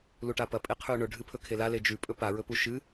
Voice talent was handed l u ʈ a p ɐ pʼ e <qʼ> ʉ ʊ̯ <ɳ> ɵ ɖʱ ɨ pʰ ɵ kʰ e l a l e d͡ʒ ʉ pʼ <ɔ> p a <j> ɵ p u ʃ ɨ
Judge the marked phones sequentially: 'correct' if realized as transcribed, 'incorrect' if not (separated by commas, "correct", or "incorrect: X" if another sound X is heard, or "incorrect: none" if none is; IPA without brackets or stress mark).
incorrect: qʰ, correct, incorrect: ɵ, incorrect: ɹ